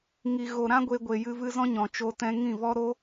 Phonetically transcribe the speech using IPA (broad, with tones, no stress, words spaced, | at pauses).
ŋi˨ɣo˨ɾã˦ ɡʷe˧ɡʷe˨jɨ˧ vɨ˧zɔ̃˦ɲɔ̃˨ t͡ʃo˧tɛ̃˧ŋĩ˦˨vɔ˦ ɾo˦